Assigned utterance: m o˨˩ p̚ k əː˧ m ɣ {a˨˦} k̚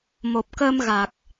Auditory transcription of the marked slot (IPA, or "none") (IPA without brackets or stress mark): a˨˩